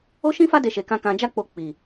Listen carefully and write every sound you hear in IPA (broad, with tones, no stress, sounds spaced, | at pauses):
o˦ ʃ ĩ˦ f a˦ d e˦ ʃ e˧ k ã˦ k ã˧ d͡ʒ a˦ k͡p o˧ k͡p i˨